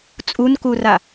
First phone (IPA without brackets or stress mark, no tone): t͡sʼ